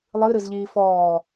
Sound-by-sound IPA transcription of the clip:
lˠ ɨ ɾ ɨ z ʎ iː f ɔː

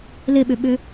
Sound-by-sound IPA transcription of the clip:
l ɪ ɓ ʏ ɓ ʏ

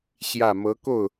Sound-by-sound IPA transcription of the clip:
ɕ j ä˥˩ m ɤ˧˥ k o˥˩ ʊ̯

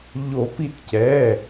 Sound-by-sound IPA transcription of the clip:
ʎ o˨˩˦ p i˧˩ t c ɛ˩˧˩

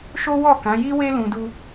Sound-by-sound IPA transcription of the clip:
ʃ o˦ w ɔ˦˨ k ã˨˦ j i˦ w e˦ l ũ˧ d u˦

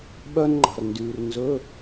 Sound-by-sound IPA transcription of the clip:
ɓ œ˥ n ŋ͡ǃ ɑ̤˨ r n d yː˨ r n z ɵ˧˥˧

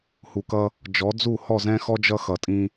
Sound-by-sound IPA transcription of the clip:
h u˨ k ʌ˦ | d͡ʒ ɔ˨˦ d͡z u˦˨ h ɔ˦˨ z ɛ̃˦ x ɔ˦ d͡ʒ ʌ˦ x ʌ˨ tʼ ĩ˦

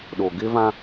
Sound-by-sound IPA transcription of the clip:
ɗ o˨ ɡ ɪ˦ v ã˦

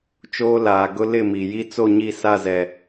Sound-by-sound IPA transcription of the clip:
t͡ʃ oː˦ l aː˨ ɡ ʊ˦ l ɪ˦˨ m i˨ j i˦ t͡s o˦˨ ɲ i˦˨ s a˦˨ z ɛ˨

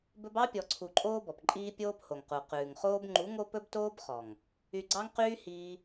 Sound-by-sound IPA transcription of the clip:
b ɵ˦ b ɑ˦ pʲ ɔ˧ ǀʰ u˧ ǃʼ oː˦ b ɔ˨ p ǃʼ iː˦ pʲ oː˦ p h o˨ ŋ q u˨ q ʉː˨ ŋ χ oː˦ b ŋ͡ǃ u˨˦ ŋ o˦ p ɵ˦ b t oː˦ b χ ɔ˨ ŋ | y˧ ɡ͡ǀ ɑ˦ ŋ q yː˦ h iː˦

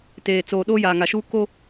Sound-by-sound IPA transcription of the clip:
t eː˨ t͡s oː˨ ɗ oː˦ j aː˨ ŋ a˨ ʃ uː˦ k o˦

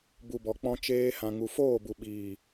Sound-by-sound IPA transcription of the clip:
b u˨ b ɔ˨ k͡p ɔ̃˧ t͡ʃ eː˧ h ã˨ ŋ u˨ f oː˦˨ b u˨ ɓ iː˨

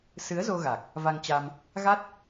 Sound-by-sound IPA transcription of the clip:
s ɨ˨˦ ə̯ z o˧ ɣ a˨˩ k̚ | v a˧ ŋ t͡ɕ a˧ m | ɣ a˦˥ t̚

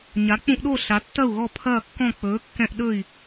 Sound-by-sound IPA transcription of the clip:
ɲ a˩˥ k͡p ũ˦ ʔ ɗ o˥˩ ɬ a˩˥ tː ɐ˥˩ u̯ ɣ ɔ˥˩ pʰ ɐː˥˩ kː ɔ̃˥˩ k͡p ɵː˩˥ kː ɛ̃˦ ʔ ɗ ɵ˥˩ i̯

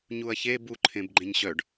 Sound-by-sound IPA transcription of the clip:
ɲ u ɐ̯ ç e b u ǃʰ ẽ b ɡ͡ǃ ẽ ɲ ɕ œ ɖ

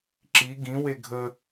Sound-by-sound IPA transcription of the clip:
ǁ i ɡ ĩ w e ɡʱ ə

